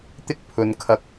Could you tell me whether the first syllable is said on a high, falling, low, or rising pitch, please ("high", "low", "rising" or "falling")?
high